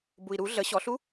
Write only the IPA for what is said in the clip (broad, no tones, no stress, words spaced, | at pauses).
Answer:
bui̯ɾu ɮə ɕɔɬu